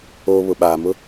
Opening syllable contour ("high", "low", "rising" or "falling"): low